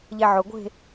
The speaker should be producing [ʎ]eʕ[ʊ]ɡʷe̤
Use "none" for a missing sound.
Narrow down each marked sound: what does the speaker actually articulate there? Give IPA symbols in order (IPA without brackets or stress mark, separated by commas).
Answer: ʎ, ʊ